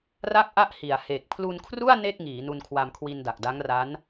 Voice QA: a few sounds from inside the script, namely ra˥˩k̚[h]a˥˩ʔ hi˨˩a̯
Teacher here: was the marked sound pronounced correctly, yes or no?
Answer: no